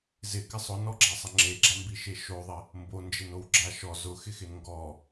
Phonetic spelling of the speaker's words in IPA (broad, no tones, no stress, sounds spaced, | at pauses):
z ɪ k ɪ sˤ ʊ n ɔ ɡ͡ǁ a sˤ ɪ ŋ͡ǁ e ɡ͡ǁ a m b i ʃ e ʃ o ðˤ ɪ | m b o n d͡ʒ e n o w ɡ͡ǁ a ʃ ɔ z ʊ x ɪ x ɪ n ŋ ɡ ɔ